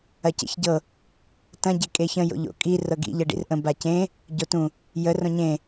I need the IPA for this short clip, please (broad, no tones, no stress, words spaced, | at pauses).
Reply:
ɐcḛçɟɤ | tɐ̃ ɟekʼeçə̃ jo̰ʎo̰kʼi rɤɡḭ ʎɤɖḭrʔə̃ bacẽ | ɟotũ | jə rõɲẽ